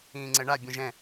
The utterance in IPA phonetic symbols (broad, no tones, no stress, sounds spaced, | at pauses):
ĩː ŋ͡ǀ ɛ ɳ a bʲ ɔ̃ ʒ ɛ̃